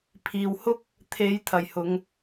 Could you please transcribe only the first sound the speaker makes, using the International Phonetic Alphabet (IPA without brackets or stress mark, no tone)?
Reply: pʰ